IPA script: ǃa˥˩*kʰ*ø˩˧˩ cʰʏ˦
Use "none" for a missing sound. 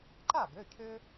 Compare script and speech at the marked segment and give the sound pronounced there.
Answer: ɡ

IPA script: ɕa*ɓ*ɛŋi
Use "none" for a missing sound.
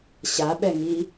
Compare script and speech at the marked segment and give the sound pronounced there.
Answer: ɓ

